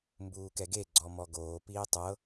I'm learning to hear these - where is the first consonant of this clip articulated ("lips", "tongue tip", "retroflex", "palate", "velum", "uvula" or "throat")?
lips